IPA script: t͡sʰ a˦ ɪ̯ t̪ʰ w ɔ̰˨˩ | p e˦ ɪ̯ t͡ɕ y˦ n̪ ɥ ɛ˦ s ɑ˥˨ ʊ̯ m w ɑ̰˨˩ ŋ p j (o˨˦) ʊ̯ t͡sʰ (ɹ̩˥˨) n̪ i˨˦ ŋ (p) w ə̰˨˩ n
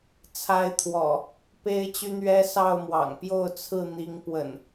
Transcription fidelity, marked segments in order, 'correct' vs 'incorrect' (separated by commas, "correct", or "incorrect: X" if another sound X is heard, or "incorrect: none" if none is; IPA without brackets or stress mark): incorrect: o˥˨, correct, correct